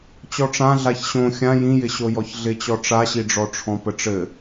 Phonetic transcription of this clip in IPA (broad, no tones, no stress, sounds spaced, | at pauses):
t͡ɕ ɔ ʈ͡ʂ ã ɮ a ç ɕ õ xʲ ã j ĩ j ɪ ɕ o j ɔ ç ɮ ɪ t͡ɕ ɔ ʈ͡ʂ a ɕ i ɖ͡ʐ ɔ ʈ͡ʂʰ ɔ̃ p ə ʈ͡ʂ ɘ